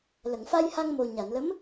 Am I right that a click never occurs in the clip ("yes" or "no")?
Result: yes